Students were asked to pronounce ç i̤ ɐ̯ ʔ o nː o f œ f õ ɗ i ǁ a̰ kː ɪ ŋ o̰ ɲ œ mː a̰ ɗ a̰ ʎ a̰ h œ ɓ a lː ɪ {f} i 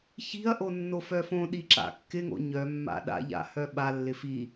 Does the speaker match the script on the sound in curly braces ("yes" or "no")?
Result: yes